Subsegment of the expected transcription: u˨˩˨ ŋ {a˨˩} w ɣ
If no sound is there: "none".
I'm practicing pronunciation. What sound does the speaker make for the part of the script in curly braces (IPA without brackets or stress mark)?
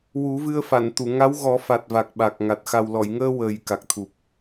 a˧˥